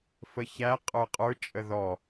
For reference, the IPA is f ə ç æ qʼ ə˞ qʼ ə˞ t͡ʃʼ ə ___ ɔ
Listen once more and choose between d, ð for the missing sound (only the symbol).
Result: ð